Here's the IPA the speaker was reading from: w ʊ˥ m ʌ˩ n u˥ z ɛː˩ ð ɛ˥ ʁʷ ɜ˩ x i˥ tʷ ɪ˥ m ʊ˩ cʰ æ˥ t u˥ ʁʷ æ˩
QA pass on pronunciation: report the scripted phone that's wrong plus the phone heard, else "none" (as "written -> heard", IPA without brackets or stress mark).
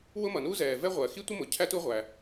ð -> v